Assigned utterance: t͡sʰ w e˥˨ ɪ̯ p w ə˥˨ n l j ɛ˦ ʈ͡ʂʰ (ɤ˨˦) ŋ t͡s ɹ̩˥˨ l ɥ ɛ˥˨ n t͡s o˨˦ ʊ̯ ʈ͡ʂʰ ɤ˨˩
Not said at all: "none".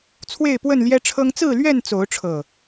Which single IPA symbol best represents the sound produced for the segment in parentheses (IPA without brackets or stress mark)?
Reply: ɤ˦